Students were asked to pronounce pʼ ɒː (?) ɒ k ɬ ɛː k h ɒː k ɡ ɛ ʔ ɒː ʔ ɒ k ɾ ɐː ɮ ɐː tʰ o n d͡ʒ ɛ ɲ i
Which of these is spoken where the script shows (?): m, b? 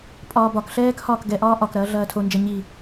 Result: b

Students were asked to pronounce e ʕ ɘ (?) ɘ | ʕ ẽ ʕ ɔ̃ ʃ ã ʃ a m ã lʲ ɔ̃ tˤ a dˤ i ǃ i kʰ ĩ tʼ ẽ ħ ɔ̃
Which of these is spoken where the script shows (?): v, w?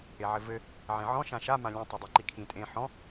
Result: v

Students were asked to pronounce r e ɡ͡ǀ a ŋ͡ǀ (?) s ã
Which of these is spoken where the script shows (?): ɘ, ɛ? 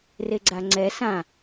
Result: ɛ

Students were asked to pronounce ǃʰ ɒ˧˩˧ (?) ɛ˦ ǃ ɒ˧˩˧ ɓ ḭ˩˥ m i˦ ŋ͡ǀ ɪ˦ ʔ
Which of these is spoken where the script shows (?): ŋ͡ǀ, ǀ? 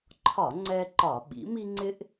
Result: ŋ͡ǀ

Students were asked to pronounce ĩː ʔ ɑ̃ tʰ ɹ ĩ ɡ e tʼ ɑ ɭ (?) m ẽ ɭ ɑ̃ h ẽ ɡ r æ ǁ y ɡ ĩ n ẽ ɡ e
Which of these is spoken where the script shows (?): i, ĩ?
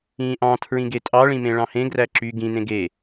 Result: ĩ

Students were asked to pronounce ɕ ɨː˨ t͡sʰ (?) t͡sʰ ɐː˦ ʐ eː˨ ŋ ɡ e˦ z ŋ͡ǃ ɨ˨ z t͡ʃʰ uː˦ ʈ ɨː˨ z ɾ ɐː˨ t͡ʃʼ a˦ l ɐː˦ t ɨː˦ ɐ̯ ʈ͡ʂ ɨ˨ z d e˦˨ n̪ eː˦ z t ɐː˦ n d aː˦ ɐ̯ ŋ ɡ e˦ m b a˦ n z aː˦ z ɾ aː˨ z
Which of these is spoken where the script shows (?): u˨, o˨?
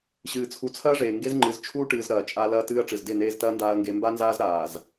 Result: u˨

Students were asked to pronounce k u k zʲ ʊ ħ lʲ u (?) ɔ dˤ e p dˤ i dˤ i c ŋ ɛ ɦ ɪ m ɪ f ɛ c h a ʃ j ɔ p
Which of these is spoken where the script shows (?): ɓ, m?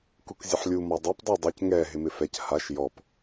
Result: m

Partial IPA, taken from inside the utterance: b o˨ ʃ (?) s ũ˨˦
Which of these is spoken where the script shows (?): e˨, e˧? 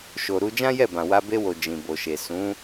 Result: e˨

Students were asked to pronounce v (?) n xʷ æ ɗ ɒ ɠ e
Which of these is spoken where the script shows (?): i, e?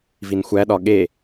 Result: i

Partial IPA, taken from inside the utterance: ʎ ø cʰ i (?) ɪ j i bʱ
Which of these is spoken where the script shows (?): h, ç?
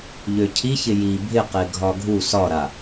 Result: ç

